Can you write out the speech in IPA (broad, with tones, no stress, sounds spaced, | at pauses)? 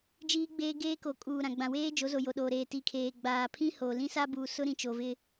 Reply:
d͡ʒ iː˦ ɡ͡b eː˦ ɡ eː˦ k o˨ kʼ uː˨ ɾ ã˨ ɡ͡b ã˨ w eː˦ d͡ʒ o˨˦ z o˨ j o˨ ɗ oː˨ ɾ eː˨ t i˨ kʰ eː˨ ɡ͡b aː˨ pʰ ĩ˦ h o˨ l ĩ˦ s a˦ b uː˨ s ʊ˦ ɾ ĩ˨ t͡ʃ o˨ v ɪ˦